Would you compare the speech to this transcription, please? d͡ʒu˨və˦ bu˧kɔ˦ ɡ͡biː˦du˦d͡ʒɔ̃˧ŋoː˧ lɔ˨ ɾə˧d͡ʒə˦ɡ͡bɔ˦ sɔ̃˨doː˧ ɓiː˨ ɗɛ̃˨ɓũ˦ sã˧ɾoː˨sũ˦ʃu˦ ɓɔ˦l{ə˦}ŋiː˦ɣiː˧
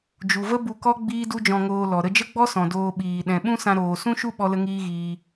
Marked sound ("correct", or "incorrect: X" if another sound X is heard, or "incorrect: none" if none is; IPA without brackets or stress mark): correct